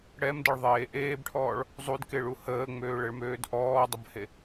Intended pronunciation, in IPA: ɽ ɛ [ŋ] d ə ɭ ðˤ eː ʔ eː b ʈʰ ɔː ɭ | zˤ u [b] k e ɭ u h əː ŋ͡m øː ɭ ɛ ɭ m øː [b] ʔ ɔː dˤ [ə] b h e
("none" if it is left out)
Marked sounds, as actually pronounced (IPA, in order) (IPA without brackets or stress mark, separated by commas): m, d, d, ə